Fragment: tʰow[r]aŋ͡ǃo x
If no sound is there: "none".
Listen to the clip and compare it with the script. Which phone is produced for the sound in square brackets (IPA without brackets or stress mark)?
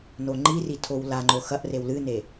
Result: l